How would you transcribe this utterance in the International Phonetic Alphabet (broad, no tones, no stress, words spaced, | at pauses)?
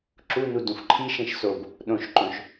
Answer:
ǁunu dũfǃʰiʃẽʃ sob | ɗõʃǃõʃ